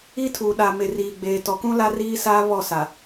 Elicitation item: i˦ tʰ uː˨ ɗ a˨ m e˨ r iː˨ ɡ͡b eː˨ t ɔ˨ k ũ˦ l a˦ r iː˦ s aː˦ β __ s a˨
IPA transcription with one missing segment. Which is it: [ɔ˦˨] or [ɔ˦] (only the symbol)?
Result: ɔ˦˨